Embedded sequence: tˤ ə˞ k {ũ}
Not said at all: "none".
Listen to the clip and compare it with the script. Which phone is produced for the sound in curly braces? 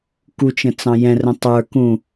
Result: ũ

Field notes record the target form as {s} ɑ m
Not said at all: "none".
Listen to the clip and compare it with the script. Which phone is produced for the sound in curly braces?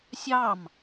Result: sʲ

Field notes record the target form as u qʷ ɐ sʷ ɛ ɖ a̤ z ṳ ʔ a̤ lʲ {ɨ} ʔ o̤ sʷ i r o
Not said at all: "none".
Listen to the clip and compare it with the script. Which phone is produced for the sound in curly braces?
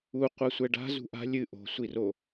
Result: ɨ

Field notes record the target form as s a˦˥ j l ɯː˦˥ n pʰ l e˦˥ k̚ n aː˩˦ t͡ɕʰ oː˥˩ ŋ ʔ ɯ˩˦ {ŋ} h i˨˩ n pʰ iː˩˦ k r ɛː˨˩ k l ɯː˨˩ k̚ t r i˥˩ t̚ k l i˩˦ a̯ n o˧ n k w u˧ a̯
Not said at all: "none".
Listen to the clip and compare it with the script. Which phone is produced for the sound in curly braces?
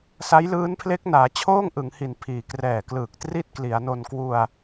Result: ŋ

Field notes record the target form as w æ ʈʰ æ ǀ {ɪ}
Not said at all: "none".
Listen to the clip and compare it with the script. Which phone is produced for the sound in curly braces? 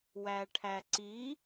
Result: i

